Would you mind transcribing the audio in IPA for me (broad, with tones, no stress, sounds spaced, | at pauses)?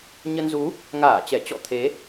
ɲ ə˧ n z u˨˦ | ŋ aː˧˩ t͡ɕ ɛ˧˩ t͡ɕ ɔ̰˧˨ t̪ʰ e˨˦